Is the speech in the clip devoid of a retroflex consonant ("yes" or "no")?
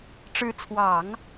no